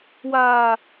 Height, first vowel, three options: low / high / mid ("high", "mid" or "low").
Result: low